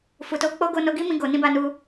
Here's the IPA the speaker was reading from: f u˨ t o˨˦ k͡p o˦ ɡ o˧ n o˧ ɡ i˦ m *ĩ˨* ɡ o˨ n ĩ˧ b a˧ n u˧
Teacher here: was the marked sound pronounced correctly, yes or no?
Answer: no